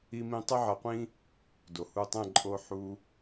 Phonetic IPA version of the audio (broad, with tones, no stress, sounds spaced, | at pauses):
i˦ m ĩ˦ tˤ ɨ˦ ʕ ɐ˧ qʷ ĩ˦ | d o˨ h u˧ tˤ ɛ̃˦˨ ǃʼ o˦ ħ u˦